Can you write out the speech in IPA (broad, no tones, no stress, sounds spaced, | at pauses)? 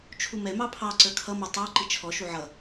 t͡ʃʰ u m ɛ m ɑ pʰ ɑ ǀ ə˞ kʰ ʌ m ɪ tˤ ə˞ ǃ i t͡ʃʰ ɔ ʃ u ʕ ʌ